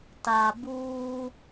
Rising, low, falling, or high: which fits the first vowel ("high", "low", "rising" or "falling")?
low